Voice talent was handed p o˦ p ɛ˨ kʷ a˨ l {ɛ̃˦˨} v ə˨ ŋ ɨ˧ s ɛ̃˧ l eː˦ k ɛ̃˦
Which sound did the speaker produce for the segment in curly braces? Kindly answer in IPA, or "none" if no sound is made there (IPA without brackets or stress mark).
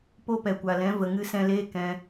ɛ̃˨˦